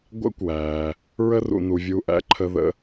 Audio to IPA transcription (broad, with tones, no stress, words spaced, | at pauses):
ɡʷæ̰˥kʷwæː˩ | ɹə˦rṵ˩nu˩vʲuː˨ ʔæ̰˥ǃʰəː˦ðə̰˥